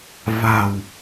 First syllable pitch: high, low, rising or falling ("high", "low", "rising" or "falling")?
low